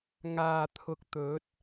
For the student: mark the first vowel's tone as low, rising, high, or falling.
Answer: low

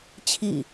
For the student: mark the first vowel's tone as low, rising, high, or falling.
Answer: falling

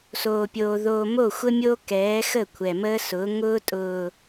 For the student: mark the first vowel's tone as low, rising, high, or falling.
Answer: low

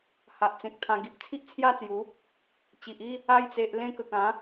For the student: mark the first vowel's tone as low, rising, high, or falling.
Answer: low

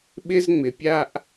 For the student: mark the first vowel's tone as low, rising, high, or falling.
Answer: high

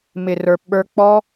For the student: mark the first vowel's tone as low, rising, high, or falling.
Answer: low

